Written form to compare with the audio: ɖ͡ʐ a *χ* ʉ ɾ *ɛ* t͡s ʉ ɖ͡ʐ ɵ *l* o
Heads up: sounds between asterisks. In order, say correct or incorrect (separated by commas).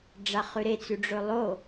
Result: correct, incorrect, incorrect